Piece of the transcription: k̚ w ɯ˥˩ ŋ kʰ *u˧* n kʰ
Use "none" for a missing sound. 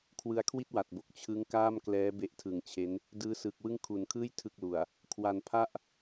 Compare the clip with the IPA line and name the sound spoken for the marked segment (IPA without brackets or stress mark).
u˨˩